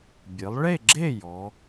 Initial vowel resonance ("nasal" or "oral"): oral